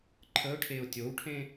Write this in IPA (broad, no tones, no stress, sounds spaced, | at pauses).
ǃʰ ə ʊ̯ ʈʰ e ʊ̯ tʲ o w ʈʰ ẽ